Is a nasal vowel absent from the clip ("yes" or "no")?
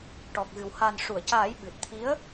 yes